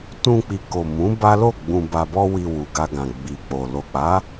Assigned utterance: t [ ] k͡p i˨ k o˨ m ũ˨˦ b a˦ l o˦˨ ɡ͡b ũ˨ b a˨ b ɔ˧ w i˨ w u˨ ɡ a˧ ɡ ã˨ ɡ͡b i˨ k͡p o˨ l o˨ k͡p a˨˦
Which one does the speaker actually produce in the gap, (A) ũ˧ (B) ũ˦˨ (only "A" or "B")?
A